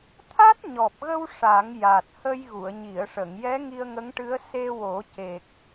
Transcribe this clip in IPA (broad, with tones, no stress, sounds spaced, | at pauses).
t̪ʰ a˦˥ t̚ ɲ ɔ˨˩ p̚ ɣ ə˧ w ʂ a˨˩˦ ŋ j a˨˩ t̚ h ə˧ j ɣ u˨˩˨ ə̯ ɲ i˨˩˨ ə̯ ʂ ə˨˩˨ ŋ j ɛ˧˥ ŋ i˧ ə̯ ŋ ə˧˥ ŋ ʈ ɨ˧˥ ə̯ s e˧ w o˨˩˦ c e˨˩ k̚